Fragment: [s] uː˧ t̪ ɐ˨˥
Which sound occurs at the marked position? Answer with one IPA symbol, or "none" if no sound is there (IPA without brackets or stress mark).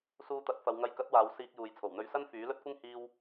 s